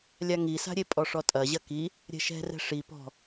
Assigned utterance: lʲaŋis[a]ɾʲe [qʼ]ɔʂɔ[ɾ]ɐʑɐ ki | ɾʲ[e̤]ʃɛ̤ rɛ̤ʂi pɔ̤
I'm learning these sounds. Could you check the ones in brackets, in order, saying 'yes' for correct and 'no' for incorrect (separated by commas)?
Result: no, no, no, no